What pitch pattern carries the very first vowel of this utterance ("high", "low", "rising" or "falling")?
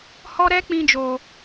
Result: high